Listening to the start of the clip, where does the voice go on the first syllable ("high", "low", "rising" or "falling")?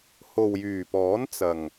low